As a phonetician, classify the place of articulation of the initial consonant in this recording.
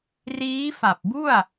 alveolar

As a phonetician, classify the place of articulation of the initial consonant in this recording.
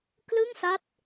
velar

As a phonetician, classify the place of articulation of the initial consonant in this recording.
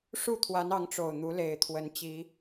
retroflex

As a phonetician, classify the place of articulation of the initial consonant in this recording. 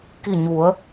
velar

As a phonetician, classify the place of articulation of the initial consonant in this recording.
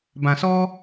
labial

